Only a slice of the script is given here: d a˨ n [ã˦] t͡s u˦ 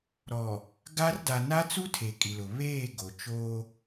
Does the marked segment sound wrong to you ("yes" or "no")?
yes